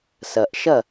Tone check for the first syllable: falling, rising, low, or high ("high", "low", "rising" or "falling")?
low